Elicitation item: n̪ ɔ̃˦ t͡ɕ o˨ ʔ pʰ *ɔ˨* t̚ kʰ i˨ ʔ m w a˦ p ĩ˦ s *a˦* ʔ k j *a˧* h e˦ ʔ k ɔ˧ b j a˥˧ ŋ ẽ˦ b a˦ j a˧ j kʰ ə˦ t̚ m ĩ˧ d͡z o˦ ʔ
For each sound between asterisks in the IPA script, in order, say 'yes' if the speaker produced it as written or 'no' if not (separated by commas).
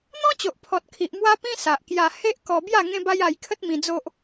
yes, no, yes